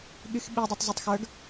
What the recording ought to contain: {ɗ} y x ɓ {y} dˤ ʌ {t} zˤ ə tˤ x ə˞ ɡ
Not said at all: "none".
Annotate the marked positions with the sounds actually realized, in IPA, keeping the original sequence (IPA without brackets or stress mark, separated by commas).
ɠ, i, tˤ